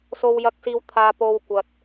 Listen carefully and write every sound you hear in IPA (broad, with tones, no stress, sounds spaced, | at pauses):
s o˧ w j ɐ˧ k̚ s iː˧ w t̪ʰ aː˧ p o˧ w kʷ ɐ˧ t̚